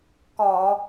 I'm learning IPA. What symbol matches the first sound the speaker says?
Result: k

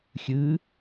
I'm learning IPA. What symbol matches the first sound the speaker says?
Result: xʲ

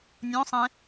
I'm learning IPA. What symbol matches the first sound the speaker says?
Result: nʲ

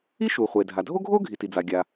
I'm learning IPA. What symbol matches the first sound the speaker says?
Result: i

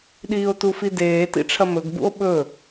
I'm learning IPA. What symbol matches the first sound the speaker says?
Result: ɗ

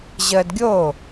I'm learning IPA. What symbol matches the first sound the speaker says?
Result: ʑ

